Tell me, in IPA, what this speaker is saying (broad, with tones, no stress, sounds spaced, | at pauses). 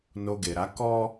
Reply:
n o˧ ɡ e˨ ɾ a˨˦ k ɔ˦